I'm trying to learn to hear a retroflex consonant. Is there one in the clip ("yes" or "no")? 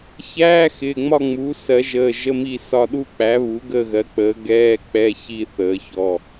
no